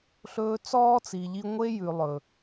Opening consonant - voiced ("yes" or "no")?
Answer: no